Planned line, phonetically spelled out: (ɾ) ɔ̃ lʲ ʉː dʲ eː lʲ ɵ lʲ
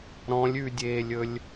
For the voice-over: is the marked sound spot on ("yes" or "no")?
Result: yes